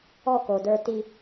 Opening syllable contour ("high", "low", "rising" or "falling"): falling